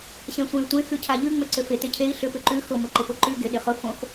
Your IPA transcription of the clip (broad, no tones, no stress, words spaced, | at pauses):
ɕɛ̃sʷẽy̯tʷẽ xʉcʰaʎʉ ŋ͡mʏǀʏfɪ tɪcʰei̯ ɬʏ pʏǃʉ xʊ mʊǃɪpʊǃʉ ɡɪ ɗɪχʊ fõx